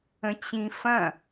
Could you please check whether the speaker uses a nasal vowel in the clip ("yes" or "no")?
yes